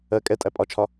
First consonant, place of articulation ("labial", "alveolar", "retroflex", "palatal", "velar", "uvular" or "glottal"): velar